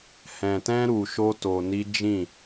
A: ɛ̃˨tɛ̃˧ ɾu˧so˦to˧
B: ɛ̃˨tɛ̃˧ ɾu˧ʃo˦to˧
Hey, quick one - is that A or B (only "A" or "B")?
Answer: B